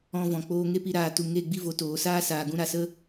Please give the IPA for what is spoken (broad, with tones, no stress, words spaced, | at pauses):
ɔ̃˧vɔ̃˨ k͡poː˧ŋe˦pi˧ ɾaː˨tu˨ ŋe˦˨ ɡ͡bi˦vo˨˦ toː˨ saː˦saː˨ ɡũ˧ɾa˨sə˦